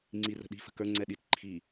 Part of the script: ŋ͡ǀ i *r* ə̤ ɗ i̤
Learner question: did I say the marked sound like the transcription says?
yes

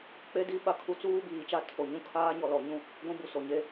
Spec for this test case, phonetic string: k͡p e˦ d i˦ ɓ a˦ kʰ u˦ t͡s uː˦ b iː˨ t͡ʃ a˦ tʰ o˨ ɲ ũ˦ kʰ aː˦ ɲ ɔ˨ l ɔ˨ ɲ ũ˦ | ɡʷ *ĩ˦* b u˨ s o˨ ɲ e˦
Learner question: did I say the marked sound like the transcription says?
yes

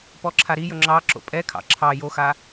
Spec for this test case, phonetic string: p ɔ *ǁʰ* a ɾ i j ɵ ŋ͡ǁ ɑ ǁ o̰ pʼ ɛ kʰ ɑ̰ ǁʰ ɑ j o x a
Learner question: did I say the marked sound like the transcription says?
yes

